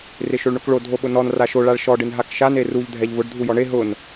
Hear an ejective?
no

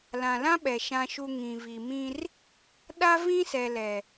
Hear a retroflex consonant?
no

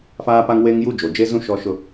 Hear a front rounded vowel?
no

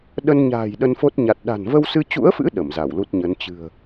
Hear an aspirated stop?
no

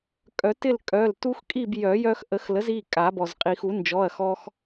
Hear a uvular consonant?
yes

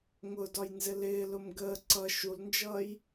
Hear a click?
yes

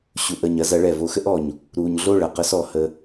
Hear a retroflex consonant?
yes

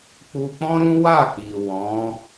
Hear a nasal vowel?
yes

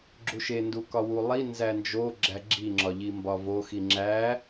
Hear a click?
yes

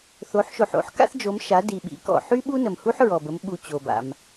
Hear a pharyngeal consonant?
yes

